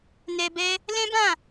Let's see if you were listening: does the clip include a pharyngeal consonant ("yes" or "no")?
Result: no